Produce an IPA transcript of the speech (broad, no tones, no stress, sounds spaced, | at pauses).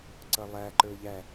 ǀ ʌ lˠ æ ǃ ə˞ ʎ æ